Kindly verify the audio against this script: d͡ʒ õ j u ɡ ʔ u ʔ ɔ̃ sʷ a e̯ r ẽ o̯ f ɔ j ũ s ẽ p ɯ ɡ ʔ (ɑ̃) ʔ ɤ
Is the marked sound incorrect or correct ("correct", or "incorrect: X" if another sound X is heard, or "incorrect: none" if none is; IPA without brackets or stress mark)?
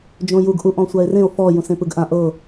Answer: incorrect: ã